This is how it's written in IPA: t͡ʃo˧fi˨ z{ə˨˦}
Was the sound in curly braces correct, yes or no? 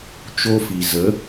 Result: yes